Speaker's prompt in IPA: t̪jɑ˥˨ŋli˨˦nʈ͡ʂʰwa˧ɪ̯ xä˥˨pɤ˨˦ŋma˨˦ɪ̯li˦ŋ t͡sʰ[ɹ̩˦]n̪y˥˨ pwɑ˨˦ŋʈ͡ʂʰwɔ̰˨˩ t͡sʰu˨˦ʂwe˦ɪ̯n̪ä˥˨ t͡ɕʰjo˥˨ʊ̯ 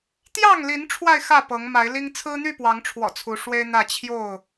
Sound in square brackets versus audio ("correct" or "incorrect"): correct